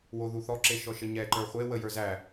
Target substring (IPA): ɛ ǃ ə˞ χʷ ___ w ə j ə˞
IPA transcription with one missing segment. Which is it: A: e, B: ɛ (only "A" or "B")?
A